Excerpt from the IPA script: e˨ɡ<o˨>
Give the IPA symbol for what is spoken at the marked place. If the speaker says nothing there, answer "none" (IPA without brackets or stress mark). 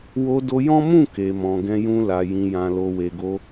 o˧